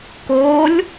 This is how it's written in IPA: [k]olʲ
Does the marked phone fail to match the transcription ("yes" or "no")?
no